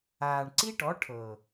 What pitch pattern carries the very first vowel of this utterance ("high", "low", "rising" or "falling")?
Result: low